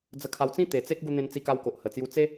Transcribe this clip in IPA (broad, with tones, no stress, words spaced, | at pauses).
d͡zə˧kʰa˧wt͡sĩ˥˧ t̪e˨˩t͡se˦k̚ ɡu˧n̪ẽ˧n t͡si˧ka˧wko˨ʔ hə˨˩t͡sju˧ t͡se˦